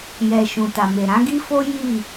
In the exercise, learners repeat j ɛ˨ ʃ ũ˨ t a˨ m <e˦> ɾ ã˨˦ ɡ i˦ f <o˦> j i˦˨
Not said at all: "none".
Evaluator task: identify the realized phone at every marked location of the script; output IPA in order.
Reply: e˨, o˦

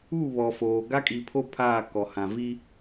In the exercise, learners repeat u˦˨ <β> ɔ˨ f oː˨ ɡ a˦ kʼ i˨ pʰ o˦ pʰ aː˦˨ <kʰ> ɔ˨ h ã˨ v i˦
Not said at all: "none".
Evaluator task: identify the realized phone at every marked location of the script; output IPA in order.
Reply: β, k

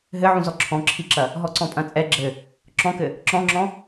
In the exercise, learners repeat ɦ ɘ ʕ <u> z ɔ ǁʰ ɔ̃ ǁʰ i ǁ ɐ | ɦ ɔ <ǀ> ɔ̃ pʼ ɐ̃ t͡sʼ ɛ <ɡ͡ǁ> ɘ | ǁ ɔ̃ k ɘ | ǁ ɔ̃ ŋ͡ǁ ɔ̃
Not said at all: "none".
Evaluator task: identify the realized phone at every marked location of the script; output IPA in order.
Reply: ũ, ǀ, ɡ͡ǁ

